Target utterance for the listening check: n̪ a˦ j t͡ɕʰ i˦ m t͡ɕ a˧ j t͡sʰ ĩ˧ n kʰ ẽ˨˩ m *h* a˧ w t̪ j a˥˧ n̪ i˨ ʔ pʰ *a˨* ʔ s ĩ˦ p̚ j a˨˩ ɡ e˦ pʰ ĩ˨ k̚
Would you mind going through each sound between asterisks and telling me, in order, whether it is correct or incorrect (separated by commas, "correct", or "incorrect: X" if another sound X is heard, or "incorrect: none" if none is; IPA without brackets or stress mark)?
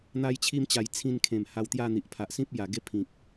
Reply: correct, correct